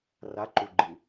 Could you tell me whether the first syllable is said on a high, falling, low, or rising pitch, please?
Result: rising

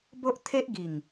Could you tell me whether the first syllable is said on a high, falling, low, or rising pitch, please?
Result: high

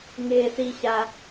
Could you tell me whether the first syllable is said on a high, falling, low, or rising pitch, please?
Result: low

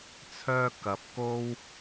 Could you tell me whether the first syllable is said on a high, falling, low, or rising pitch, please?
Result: high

